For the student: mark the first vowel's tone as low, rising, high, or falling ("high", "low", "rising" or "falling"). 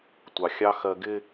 low